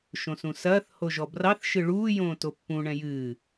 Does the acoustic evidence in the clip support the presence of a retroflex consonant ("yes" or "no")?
yes